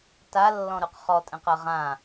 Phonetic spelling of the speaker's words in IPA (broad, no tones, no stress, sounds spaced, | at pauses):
t a lː ɔ̃ ɾ ʉ q χ ɔ tʼ ɛ̃ q ɜ ʁ ã